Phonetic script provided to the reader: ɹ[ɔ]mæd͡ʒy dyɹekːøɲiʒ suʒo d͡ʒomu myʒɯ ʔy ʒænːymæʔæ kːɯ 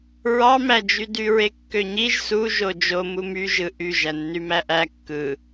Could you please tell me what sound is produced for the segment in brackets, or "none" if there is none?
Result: ɑ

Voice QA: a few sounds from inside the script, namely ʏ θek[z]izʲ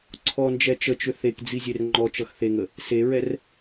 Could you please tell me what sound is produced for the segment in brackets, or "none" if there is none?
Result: d͡z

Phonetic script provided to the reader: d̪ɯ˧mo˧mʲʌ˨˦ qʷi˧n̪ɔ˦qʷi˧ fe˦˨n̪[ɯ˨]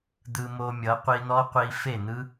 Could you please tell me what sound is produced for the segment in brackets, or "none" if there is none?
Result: ɯ˦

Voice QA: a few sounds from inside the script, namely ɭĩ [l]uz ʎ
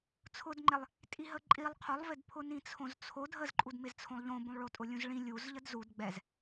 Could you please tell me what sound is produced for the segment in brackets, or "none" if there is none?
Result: lʲ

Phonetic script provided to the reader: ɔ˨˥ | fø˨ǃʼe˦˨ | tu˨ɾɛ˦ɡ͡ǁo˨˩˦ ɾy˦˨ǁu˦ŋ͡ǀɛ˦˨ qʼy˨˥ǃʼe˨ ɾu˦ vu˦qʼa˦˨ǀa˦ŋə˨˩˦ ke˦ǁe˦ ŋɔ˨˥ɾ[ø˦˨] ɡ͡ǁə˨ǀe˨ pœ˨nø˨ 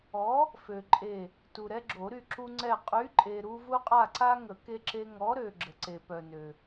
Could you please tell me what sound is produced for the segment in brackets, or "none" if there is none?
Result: ø˨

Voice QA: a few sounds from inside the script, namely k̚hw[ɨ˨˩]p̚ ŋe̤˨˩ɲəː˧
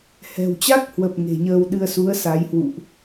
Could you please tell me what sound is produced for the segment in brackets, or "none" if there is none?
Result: ə˨˩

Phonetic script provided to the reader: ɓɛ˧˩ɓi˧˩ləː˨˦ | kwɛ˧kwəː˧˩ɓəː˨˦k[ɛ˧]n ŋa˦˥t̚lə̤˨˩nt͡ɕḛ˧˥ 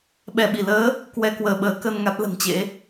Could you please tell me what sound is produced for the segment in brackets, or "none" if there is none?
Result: ə˧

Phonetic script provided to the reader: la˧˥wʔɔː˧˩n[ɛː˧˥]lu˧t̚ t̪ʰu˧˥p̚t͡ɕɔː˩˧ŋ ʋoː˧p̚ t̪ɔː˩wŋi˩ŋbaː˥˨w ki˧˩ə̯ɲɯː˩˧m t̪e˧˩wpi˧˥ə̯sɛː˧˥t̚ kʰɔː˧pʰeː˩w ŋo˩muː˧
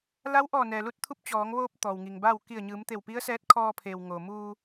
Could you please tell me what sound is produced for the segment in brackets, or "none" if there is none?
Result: ɛː˩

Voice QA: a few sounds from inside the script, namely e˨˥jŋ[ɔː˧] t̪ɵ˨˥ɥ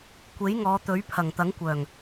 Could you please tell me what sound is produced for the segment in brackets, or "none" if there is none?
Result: ɔː˨˧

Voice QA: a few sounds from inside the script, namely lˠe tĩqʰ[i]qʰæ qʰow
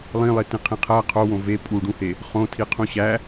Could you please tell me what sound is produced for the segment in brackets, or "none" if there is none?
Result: ĩ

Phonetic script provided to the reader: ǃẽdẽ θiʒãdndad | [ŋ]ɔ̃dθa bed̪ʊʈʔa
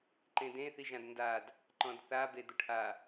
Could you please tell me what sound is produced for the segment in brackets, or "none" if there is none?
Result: ǃ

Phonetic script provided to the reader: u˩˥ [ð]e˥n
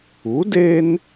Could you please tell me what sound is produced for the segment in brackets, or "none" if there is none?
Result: d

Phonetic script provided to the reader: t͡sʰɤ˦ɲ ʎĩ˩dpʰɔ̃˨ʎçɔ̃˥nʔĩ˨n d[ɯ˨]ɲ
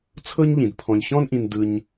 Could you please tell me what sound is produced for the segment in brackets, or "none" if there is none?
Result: ɯ˨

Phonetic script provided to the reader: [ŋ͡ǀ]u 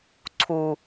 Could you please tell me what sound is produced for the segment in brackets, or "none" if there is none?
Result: ǀʰ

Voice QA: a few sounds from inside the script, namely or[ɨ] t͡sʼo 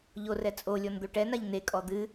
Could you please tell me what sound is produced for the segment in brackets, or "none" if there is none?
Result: ɛ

